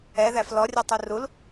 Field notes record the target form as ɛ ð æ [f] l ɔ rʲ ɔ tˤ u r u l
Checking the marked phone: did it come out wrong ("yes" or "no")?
no